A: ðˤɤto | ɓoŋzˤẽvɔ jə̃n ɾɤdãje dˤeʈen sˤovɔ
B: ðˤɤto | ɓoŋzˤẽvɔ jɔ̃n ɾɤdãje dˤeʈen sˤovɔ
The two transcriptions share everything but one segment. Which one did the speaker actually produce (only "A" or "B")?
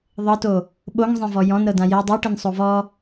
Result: B